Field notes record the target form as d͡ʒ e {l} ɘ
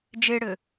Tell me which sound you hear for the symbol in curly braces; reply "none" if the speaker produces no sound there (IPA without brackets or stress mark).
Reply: ɽ